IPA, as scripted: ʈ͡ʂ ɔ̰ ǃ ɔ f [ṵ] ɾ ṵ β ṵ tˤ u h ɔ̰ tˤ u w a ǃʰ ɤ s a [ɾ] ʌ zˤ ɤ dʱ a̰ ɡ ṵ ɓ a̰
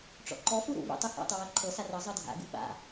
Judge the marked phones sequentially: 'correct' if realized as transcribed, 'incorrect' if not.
incorrect, incorrect

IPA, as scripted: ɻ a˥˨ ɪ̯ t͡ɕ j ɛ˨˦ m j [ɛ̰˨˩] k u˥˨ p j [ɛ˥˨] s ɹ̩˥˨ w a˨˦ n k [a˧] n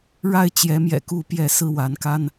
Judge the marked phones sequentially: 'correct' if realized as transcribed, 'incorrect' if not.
correct, correct, incorrect

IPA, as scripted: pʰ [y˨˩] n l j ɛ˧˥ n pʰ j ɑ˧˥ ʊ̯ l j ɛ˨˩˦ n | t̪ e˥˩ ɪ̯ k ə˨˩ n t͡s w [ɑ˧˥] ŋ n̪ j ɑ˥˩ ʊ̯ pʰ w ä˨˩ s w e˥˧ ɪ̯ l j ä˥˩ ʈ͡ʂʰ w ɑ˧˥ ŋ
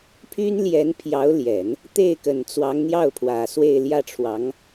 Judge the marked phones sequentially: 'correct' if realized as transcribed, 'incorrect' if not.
incorrect, correct

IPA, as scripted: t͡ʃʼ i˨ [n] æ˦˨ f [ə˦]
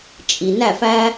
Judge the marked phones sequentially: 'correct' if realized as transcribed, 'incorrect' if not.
correct, incorrect

